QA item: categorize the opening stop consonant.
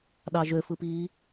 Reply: implosive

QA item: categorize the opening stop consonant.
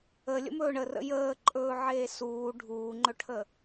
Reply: click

